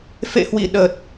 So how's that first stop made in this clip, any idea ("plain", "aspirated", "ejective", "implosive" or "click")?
implosive